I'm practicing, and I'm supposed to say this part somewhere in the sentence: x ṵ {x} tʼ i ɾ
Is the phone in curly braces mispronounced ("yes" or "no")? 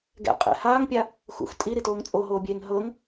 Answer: no